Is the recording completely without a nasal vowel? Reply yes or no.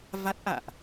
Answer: yes